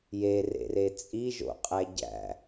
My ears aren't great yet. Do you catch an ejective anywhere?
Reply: yes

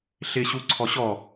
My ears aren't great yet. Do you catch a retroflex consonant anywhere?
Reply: no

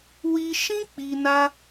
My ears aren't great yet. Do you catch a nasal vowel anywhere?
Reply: yes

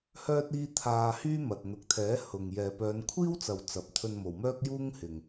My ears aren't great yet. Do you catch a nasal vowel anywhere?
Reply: no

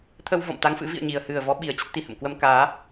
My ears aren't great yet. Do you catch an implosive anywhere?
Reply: yes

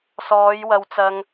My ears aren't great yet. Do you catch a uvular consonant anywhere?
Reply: no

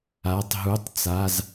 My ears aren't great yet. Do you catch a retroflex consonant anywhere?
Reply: no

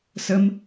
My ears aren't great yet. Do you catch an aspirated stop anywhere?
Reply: no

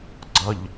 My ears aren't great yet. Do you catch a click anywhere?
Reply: yes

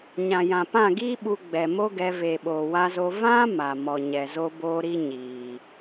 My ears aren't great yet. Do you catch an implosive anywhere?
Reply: yes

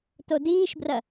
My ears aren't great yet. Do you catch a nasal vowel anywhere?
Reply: no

